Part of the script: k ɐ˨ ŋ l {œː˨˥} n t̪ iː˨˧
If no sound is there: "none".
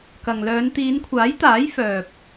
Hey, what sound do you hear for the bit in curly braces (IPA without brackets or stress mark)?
œː˨˧